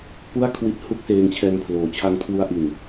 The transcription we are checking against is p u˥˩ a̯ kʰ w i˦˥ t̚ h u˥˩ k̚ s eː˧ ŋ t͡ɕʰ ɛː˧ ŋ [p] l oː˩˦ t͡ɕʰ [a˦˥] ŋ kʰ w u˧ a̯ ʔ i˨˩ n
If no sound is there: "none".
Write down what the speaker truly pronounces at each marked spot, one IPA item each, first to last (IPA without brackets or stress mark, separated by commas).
pʰ, a˧